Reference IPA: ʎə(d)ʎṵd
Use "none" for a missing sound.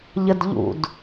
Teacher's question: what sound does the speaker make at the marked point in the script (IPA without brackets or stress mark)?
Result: d